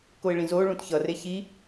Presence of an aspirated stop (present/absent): absent